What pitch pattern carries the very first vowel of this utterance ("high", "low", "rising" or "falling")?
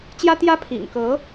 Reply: high